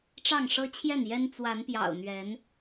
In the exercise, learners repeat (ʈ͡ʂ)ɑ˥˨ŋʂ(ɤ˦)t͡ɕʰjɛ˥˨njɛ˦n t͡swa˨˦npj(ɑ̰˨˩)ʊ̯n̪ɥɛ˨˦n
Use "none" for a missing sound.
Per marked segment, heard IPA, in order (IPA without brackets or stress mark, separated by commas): ʈ͡ʂ, ɤ˦, ɑ̰˨˩